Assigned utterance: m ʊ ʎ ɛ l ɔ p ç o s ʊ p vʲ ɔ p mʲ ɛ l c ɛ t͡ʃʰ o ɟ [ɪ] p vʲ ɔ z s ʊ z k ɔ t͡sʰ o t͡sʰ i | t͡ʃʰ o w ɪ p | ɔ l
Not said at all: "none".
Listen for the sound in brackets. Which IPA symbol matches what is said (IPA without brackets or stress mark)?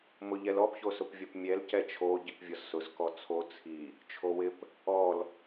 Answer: i